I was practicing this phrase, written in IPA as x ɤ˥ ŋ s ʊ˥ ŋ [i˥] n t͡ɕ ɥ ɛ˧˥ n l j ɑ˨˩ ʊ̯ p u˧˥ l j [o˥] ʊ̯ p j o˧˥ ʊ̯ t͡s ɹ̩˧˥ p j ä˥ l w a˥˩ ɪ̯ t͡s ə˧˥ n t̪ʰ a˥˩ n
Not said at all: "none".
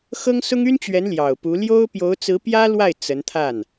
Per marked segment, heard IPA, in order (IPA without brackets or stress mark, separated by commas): y˥, o˥